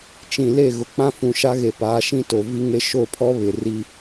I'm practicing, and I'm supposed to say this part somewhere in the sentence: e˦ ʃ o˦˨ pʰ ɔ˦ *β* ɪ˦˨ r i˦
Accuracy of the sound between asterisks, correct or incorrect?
correct